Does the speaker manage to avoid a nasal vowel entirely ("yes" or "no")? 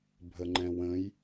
no